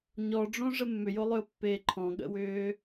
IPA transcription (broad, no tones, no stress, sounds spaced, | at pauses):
ɲ ɔ ɖ͡ʐ õ ʐ ə mː ʏ j o lˠ ʏ ʊ̯ pː eː ǃʰ ɔ̃ ɠ ə̰ w ʏː